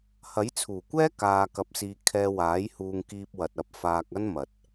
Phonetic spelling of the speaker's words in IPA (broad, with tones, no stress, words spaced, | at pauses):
hɐ˨˥jt͡sʰuː˨˩kʷɛː˥ kaː˧kɐ˧p̚siː˧ kʰɛː˧waː˨˥jhuː˧ŋ kiː˧p̚wɐ˨t̚ɐ˧p̚ faː˧k̚ ɐ˥nmɐ˨t̚